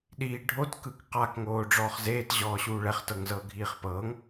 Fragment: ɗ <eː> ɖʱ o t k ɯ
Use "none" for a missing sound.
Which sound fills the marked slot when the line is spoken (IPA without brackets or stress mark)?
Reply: iː